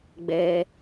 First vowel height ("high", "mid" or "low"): mid